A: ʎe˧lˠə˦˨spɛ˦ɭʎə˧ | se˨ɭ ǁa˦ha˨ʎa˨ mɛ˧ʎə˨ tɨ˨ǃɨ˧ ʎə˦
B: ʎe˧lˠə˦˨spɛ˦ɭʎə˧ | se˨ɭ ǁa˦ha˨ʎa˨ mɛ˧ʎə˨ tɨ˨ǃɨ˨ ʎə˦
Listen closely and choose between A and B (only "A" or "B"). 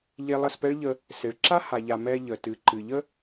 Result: B